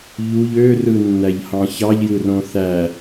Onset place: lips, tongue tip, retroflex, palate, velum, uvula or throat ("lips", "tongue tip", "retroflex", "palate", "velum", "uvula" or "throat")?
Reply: palate